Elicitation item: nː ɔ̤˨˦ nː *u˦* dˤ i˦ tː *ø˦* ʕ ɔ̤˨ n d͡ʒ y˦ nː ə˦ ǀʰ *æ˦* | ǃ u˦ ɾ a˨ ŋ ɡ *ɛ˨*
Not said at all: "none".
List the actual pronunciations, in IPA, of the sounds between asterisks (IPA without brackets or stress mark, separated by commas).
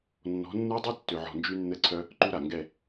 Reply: u˦, ø˨, œ˦, ɛ˦˨